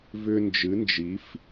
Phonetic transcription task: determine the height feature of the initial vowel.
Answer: high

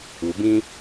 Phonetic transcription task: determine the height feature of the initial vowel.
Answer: high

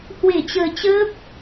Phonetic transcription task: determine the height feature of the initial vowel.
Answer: mid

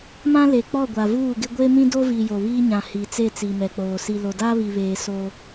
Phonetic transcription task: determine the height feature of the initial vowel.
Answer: low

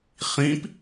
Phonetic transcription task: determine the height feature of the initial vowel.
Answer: high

